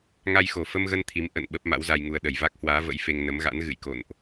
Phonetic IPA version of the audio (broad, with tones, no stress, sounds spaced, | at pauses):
ŋ a˧ j x o˨˩ f ə˧ m ɣ ə˧ n t̪ʰ i˨˦ m ʔ ə̰˧˨ n ɓ ə˦˥ p̚ m a̰˧˥ w z a˧ j ŋ u˧ ə̯ ɗ ə˧˩ j v a˦˥ k̚ h w aː˨˦ v ə̰˧˥ j f e˧ ŋ n ə˨˦ m ɣ a̰˧˥ n ɣ ɨ̰˧˨ j k o̰˧˨ n ʔ